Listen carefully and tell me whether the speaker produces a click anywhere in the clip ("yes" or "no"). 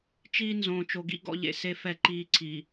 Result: yes